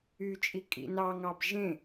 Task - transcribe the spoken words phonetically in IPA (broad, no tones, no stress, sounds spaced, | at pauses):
y t͡ʃʼ i kʼ ḭ n ɑ ŋ ɑ b ʒ ẽ